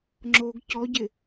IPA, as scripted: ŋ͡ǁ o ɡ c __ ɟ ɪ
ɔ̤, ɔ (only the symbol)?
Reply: ɔ